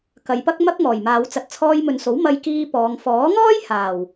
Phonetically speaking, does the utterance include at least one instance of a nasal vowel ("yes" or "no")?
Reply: no